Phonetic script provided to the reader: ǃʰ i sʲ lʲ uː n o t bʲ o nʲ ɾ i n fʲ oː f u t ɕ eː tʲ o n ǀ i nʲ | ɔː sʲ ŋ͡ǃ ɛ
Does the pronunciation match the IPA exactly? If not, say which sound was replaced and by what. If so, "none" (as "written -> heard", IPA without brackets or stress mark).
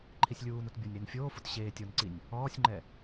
none